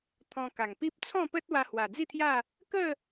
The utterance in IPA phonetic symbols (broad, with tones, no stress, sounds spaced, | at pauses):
t̪ʰ ɔ̃˧ k a˨˩ ŋ p i˦ p̚ t͡sʰ ɔ̃˥˧ p ə˦ t̚ w a˧ h w a˨˩ d͡z i˥˧ t̪ʰ j a˥˧ | k ə˥˧